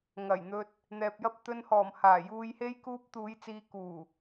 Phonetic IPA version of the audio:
ŋɐ˨˩jn̪ɵ˨t̚ | n̪ɛː˨p̚jɐ˧p̚ t̪ɵ˨nhɔː˨˩m haː˨˩juː˨jhe˧j kuː˧p̚t̪uː˨˧j t͡siː˨kuː˨˩

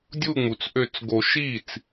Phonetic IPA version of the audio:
dʲu˧˩ŋ͡mu˩t͡sʔø˨˩˦t͡s ɡo˨˩˦ ʃi˥˩t͡s

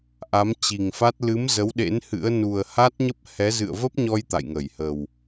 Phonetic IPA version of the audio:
ʔa˨˦mt͡ɕi˨˩ŋfa˦˥t̚ lɨ˨˦mzə˨˦wɗḛ˧˥n hɨ̰˧˥ə̯ nu˨˩ə̯ha˦˥t̚ɲə˦˥p̚hɛ˨˦ zɨ̰˧˨ə̯və˦˥p̚ɲɔ˧j t̪a̰˧˨jŋə˧˩jhə˨˩w

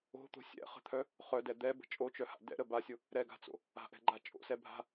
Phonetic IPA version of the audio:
o̤t̪o̤ sʲɛ̰χə̤t̪ʰœ | χœdɛ d̪ɛbə̤ t͡ʃʼot͡ʃœha̰ dɛ̰ɾə basʲʊ | ɾɛɡa̤t͡so̰ | a̤ʔɛ̤ɡ͡ǃa t͡ʃʼo̰sɛ bʱa̤

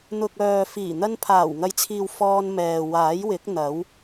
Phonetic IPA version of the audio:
n̪ʊ˨k̚ œː˨fiː˨˩n̪ɐ˧n pʰaː˨˩w ŋɐ˨˧jt͡sʰiː˨w fɔː˧nmɛː˨ waː˨˥jwɪ˨˥k̚ n̪ɐ˨˥w

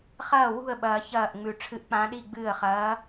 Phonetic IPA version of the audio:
χɐː˥˩wṳ˥˩ə̯ɓɐː˨˩˦çɐː˧˩ʔ ŋ͡mʉ˨˩˦ ʈ͡ʂʰɨ˧˥ʔk͡pã˧˥ɗi˥˧ɡ͡bɨː˥˩ə̯ χɐː˧˥

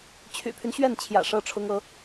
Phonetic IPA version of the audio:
t͡ɕʰy̰˨˩pʰy˦n ɕɥɛ˥˩nt͡ɕʰjä̰˨˩ ʂɤ˥ʈ͡ʂʰʊ˥ŋ ɤ˥

